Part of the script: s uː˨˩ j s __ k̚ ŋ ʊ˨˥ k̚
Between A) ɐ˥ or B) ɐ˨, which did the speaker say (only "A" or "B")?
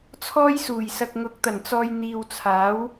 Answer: B